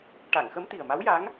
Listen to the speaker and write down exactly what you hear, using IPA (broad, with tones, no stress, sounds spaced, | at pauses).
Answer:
ʈ a˨˩˨ ŋ x ə˧˥ m t̪ i˨˩ ə̯ m a˧˥ w j a˧˥ ŋ